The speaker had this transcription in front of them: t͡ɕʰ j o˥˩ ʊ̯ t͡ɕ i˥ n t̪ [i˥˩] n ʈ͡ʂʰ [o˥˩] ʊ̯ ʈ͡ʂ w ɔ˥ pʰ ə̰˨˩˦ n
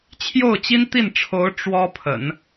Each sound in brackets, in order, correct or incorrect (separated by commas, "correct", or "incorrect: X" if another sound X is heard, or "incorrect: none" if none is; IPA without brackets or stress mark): correct, incorrect: o˧˥